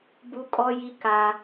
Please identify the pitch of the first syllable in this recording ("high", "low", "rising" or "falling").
high